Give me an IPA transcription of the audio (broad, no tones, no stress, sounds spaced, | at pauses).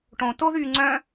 ʈ õ t o ð yː ŋ͡ǀ œ̃